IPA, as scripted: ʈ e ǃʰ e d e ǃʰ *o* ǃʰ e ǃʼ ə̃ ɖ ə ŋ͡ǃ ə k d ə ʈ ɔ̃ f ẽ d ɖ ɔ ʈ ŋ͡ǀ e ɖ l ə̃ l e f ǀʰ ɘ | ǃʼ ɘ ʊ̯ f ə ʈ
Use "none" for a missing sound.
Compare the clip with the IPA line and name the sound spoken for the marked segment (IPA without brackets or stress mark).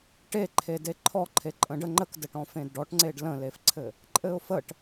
ɔ